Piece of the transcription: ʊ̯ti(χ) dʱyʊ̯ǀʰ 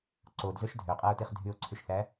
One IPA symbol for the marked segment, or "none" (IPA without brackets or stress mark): χ